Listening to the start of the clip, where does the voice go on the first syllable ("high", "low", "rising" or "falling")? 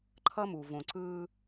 high